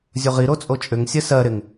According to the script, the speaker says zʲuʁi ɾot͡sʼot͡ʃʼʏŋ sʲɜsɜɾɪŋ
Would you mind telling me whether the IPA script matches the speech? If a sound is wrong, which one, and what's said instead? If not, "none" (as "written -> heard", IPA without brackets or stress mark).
none